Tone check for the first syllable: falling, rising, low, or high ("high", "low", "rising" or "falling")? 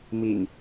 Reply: low